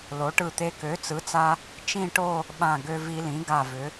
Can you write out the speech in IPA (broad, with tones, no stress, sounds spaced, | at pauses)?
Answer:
l o˩˥ ʈ ɯ˧˩ t̪ e˧ k ø˩˥ t͡s ɯ˩˥ t͡s a˧ | t͡ʃ ĩ˥˧ ʈ o˥˧ | ɓ ã˧˩ ɡ ø˧ v i˧ l ĩ˩˥ ɡ a˧˩ v ʏ˩˥